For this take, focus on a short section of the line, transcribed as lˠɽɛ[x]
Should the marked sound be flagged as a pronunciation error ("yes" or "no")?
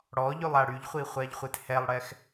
no